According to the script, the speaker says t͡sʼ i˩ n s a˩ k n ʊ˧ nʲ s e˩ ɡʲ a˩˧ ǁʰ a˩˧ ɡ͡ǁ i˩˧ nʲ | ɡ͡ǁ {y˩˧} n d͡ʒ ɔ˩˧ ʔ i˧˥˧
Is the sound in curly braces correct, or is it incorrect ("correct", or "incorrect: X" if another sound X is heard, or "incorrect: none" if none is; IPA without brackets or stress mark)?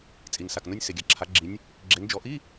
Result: incorrect: e˩˧